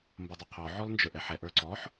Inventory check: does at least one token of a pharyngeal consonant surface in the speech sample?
yes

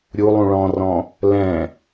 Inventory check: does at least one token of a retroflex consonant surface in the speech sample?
yes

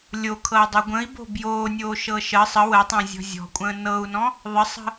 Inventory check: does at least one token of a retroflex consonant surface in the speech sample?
no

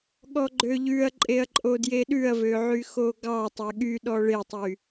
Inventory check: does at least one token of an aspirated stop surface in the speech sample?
no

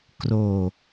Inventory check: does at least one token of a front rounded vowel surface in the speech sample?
no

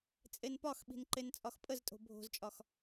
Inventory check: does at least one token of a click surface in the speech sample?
yes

